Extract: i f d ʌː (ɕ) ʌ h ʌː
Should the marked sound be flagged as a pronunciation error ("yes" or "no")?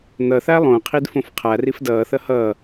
yes